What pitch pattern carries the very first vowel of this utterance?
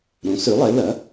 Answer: rising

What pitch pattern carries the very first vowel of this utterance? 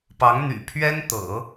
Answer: rising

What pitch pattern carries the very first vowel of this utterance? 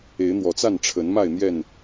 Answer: rising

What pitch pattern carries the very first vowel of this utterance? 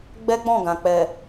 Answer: high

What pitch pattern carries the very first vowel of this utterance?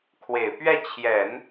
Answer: low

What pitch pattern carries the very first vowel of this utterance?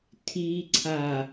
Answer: low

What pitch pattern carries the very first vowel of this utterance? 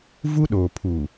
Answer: high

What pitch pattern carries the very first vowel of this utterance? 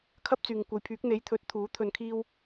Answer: high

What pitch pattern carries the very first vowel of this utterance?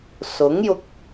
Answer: rising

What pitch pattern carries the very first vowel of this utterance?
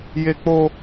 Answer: high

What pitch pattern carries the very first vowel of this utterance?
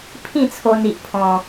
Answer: falling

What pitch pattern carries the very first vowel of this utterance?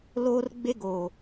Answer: high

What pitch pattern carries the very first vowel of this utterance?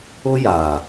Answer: high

